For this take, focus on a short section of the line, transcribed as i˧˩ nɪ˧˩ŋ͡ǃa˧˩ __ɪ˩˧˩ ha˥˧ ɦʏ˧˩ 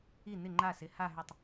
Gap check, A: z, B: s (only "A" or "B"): B